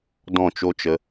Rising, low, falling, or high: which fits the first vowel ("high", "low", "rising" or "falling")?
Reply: falling